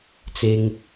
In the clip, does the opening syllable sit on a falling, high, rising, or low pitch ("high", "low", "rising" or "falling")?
high